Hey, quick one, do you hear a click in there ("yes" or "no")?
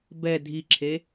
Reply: yes